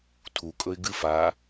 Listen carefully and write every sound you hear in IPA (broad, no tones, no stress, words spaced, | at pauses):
tʰukʼɵɪ̯ ɡɨf a